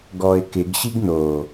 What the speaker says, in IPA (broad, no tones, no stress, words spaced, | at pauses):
ɡɔɪ̯kɪɡɕiɡ no